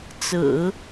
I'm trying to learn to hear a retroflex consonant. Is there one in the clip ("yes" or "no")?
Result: no